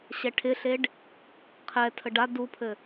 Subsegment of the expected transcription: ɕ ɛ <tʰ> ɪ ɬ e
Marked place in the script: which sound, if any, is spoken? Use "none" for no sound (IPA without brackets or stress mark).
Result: ʈʰ